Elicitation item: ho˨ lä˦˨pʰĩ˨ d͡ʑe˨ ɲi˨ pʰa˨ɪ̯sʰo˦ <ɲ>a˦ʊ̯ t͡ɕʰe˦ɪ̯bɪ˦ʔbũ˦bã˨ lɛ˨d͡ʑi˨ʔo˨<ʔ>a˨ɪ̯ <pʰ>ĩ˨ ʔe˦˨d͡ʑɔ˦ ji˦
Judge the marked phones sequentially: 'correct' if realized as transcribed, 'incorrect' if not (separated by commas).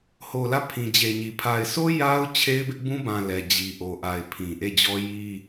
incorrect, correct, correct